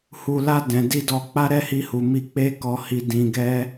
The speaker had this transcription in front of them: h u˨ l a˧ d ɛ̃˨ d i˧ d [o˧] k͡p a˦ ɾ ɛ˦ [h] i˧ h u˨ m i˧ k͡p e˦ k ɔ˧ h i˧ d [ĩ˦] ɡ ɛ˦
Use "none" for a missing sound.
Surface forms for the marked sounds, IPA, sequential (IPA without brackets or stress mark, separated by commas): ɔ˧, h, ĩ˧